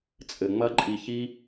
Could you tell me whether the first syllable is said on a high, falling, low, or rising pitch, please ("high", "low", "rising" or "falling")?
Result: low